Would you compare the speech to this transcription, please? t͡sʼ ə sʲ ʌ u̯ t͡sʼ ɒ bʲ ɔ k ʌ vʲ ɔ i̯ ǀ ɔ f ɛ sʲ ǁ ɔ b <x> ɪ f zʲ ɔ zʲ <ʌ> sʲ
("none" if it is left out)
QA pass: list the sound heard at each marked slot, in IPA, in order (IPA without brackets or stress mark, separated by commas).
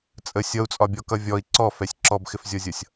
x, ʌ